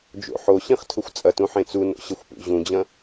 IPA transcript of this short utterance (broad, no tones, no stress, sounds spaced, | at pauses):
d͡ʒ o̰ ħ o ɕ ĩ χ tʰ ʊ xʷ t͡sʼ ɐ t ũ ħ ẽ t͡s u n o̰ ɕ ɐ xʷ p ṵ ʑ ũ d͡ʑ ɐ̃